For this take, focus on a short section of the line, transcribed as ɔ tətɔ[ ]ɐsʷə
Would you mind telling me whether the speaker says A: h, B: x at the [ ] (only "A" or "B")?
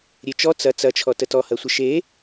A